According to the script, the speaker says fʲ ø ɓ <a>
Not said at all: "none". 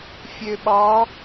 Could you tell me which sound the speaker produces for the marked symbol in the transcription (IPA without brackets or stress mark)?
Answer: ɑ